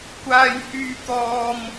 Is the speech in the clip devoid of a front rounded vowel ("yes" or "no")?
no